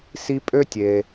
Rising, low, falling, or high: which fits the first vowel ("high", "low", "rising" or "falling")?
high